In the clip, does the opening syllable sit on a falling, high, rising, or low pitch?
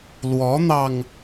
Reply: rising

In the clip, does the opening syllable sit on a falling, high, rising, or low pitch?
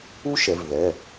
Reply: high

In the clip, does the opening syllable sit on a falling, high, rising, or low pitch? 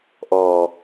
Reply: low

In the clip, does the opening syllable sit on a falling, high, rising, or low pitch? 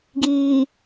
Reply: low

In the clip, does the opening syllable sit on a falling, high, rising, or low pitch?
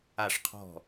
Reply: falling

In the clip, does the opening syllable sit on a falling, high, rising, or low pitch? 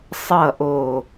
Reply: falling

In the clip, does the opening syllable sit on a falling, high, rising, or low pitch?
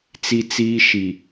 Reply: high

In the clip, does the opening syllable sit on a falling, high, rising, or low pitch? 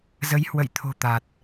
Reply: rising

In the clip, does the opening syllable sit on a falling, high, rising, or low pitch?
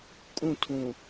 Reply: falling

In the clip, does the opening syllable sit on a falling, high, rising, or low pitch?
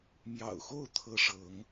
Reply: low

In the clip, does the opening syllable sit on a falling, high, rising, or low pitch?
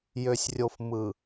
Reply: low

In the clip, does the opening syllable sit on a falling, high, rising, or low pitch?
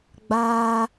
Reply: high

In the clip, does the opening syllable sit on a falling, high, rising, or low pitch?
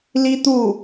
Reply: high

